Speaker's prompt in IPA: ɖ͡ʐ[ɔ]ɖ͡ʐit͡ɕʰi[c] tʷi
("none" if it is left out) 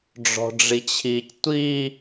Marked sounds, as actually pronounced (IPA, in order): ɔ̤, c

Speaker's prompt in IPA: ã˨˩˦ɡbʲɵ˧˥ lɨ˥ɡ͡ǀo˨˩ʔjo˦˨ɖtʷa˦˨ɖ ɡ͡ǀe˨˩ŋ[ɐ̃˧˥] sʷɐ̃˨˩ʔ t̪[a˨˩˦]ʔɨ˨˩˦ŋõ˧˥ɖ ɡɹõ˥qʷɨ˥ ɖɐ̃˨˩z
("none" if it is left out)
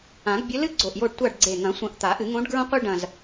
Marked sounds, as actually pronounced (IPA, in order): ɐ̃˨˩˦, a˨˩˦

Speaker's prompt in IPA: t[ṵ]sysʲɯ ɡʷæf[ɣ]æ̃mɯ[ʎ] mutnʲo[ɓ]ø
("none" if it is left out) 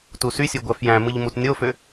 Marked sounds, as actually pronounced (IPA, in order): u, j, ʎ, f

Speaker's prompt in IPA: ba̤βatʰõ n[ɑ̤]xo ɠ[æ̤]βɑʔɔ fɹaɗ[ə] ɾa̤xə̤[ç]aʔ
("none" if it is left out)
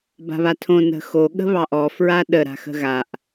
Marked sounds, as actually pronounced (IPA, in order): ə̤, ə̤, ə, ɣ

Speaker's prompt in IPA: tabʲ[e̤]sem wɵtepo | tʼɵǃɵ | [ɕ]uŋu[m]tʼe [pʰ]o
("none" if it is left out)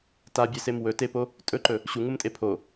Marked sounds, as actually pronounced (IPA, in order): e, ɕ, m, pʰ

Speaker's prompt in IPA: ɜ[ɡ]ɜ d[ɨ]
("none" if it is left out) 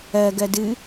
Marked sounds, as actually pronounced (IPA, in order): ɡ, ɨ

